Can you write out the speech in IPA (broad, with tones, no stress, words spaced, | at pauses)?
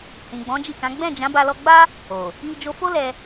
hĩ˨ɡ͡bɔ̃˨˦d͡ʒi˦˨kã˨˦ ɡ͡bɛ̃˦˨d͡ʒã˨˦ba˧ lɔ˧ɡ͡ba˦ | o˨ | i˧d͡ʒo˧fo˦ lɛ˧